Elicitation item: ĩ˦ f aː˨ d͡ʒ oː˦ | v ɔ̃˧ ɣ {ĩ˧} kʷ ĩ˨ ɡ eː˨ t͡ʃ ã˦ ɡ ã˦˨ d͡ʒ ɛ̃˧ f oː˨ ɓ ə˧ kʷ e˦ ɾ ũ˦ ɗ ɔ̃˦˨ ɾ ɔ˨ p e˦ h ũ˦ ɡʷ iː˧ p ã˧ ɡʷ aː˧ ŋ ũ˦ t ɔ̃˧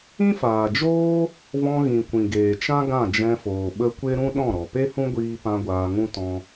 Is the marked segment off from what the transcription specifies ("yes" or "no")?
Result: yes